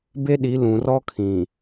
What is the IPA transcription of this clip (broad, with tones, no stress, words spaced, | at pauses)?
be˦ɗi˨˦ lũ˨rɔ˦kʰĩ˨